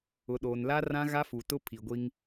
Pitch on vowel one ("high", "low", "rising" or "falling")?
low